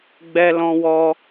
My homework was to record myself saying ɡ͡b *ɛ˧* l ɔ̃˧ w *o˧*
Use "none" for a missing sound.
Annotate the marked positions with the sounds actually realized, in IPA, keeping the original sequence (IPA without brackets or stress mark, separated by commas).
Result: ɛ˧, ɔ˧